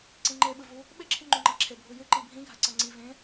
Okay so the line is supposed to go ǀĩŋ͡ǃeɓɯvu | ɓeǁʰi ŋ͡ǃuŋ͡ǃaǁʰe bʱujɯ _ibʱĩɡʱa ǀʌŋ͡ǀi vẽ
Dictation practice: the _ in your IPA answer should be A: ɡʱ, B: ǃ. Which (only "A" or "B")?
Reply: B